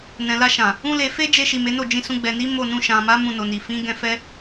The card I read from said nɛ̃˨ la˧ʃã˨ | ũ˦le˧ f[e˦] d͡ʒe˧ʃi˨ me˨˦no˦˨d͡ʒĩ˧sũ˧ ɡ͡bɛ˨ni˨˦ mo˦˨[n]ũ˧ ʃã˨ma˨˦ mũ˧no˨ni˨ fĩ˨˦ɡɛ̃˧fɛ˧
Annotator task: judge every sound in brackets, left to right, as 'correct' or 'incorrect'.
correct, correct

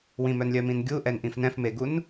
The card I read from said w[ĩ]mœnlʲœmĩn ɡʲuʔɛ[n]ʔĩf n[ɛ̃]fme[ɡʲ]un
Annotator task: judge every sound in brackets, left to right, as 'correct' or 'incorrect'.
correct, correct, correct, incorrect

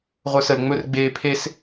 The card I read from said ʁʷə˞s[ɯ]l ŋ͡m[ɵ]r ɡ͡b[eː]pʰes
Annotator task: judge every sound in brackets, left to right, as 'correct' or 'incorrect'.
incorrect, correct, correct

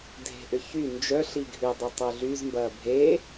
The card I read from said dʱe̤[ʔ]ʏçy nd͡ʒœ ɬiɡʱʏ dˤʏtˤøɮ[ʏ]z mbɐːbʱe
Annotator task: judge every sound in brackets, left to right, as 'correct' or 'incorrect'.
correct, incorrect

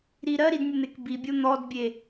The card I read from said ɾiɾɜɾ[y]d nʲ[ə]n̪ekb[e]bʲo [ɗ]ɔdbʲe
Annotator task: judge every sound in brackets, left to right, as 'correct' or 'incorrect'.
incorrect, correct, incorrect, incorrect

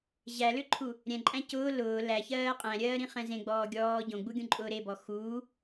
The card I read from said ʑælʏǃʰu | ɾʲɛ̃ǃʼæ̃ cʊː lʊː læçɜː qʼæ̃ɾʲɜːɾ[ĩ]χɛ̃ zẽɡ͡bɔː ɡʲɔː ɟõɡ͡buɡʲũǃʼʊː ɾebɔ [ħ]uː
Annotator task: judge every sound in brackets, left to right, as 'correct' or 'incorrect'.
correct, incorrect

